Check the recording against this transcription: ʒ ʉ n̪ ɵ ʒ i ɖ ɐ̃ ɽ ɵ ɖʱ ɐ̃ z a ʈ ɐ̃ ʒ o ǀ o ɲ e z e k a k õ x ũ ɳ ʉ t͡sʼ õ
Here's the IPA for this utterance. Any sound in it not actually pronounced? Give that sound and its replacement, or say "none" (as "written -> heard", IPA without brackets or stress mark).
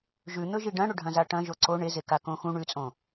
ɲ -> ɳ